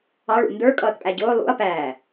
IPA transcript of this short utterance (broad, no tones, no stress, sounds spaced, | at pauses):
ɑ ɭ ṵ n d ə˞ kʼ ʌː t pʼ æ ɟ ʊː lˠ ṵ ɐ̯ p æː